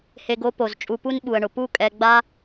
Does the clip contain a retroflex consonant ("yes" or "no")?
yes